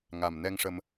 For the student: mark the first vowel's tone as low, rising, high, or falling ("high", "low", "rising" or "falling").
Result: low